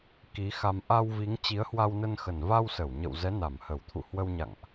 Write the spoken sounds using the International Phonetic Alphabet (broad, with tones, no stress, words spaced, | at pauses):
ki˨˦ xa˧m ʔa˧wvi˨˦ŋ t͡ɕi˨˦ə̯hwa˧wnə˧nxə˨˩n va˧wsə˧˩w ɲə̰˧˨wzɛ˨˦na˧˩m hə˧˩wt̪ʰṵ˧˨hwə˧wɲa̰˧˨ŋʔ